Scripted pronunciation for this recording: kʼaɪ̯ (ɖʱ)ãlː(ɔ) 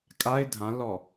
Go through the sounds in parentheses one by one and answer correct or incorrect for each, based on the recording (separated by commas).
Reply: incorrect, correct